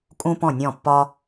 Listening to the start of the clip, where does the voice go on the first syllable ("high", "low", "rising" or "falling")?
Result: high